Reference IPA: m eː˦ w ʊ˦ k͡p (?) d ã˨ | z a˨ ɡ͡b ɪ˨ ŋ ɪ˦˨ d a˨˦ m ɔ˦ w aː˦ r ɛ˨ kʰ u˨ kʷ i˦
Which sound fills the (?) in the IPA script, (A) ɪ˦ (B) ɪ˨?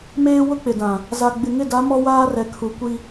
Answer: B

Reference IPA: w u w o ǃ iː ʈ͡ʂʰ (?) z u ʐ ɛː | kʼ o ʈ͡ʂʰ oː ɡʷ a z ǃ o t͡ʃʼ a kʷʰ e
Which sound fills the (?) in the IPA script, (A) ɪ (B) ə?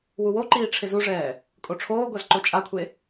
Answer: A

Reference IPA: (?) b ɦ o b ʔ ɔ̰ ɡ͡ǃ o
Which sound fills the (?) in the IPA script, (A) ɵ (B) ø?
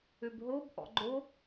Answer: B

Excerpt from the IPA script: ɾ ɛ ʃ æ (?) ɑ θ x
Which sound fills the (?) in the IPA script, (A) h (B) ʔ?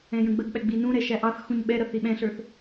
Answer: B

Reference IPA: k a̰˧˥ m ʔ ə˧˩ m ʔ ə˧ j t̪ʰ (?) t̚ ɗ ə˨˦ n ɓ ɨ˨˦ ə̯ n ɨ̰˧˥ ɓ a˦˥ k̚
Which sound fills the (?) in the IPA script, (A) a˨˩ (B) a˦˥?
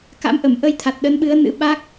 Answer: A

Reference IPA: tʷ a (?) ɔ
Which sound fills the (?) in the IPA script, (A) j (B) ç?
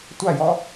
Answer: A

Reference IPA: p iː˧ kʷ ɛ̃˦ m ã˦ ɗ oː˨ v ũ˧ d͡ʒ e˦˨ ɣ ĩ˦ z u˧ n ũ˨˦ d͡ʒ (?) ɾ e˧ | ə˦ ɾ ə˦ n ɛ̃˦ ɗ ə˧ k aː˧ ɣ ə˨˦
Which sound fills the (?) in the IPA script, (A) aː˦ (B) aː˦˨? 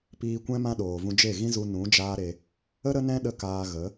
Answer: A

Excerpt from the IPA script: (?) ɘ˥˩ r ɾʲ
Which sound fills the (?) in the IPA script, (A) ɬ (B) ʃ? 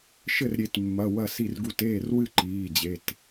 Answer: B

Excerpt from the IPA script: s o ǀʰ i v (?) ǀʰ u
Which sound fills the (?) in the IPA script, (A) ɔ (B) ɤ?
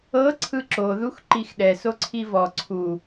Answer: A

